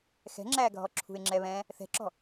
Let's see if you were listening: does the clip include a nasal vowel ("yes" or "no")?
yes